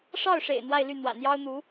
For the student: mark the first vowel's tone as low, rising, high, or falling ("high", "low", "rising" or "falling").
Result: falling